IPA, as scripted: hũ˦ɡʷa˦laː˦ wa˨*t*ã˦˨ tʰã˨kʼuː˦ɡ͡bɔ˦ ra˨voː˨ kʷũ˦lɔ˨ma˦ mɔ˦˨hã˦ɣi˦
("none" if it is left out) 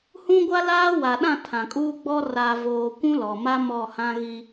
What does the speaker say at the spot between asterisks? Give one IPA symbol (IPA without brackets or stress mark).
ɗ